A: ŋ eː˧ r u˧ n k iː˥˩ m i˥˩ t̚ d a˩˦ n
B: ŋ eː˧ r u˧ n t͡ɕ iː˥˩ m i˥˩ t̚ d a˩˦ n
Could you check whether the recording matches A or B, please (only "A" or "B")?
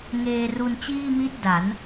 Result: B